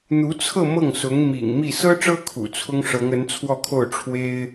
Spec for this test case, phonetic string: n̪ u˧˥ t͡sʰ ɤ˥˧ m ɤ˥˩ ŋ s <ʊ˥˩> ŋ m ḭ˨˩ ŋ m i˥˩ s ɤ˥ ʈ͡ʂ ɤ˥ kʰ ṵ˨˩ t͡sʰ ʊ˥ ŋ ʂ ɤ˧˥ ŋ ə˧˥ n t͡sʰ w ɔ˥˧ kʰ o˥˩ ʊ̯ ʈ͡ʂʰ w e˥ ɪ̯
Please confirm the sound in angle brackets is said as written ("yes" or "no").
no